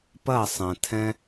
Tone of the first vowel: falling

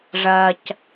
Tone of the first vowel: low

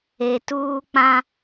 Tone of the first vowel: low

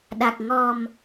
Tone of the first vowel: low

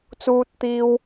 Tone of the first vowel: high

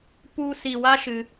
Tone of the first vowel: high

